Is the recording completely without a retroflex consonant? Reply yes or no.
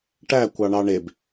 no